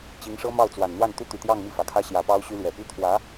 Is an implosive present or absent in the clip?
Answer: absent